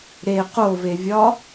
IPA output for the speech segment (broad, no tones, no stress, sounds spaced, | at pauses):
ɾ e q o v e vʲ ɒ